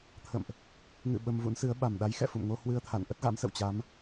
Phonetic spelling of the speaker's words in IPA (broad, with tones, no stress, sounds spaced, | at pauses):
t̪ʰ ə̰˧˨ m ʔ | ŋ ɨ̰˧˨ ɓ ə˧ m v ṵ˧˥ n s ɨ˨˦ ə̯ ɓ a˨˩ m ɗ a˨˦ j x ɛ̰˧˨ f ṵ˧˨ m ŋ o˧ h w ɨ˧ ə̯ t̪ʰ a̰˧˨ n ʔ ə˦˥ t̚ ɣ a̰˧˥ m s ə̰˧˨ w t͡ɕ a˨˦ m